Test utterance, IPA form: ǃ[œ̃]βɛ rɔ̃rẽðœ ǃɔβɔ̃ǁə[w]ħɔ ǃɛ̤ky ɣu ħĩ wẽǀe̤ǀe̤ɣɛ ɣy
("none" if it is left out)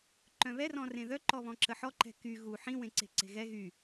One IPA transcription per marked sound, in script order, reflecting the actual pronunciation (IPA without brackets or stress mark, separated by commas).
œ̃, none